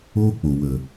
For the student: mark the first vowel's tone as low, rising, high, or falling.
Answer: high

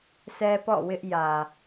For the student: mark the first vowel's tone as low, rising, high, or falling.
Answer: high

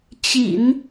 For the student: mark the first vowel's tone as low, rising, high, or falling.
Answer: low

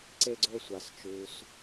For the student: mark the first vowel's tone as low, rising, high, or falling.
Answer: high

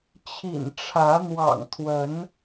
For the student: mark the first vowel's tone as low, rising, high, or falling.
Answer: low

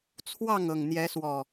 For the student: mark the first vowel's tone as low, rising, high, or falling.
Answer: falling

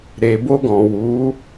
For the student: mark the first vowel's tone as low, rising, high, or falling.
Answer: low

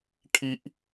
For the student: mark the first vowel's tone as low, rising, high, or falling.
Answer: high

